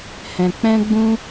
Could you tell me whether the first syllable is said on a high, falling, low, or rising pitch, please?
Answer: low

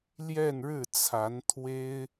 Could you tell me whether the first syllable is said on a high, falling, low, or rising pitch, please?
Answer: falling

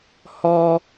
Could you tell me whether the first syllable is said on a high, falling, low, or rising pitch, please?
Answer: high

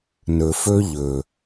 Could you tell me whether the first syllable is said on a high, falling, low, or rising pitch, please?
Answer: low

